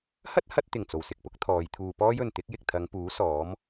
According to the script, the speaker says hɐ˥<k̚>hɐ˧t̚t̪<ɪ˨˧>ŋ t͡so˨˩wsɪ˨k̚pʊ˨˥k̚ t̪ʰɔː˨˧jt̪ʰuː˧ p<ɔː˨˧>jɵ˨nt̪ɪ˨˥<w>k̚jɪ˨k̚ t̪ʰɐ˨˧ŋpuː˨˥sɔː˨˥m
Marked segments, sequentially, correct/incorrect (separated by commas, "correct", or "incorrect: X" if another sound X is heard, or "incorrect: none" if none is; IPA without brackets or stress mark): incorrect: t̚, incorrect: ɪ˨˩, incorrect: ɔː˥, incorrect: none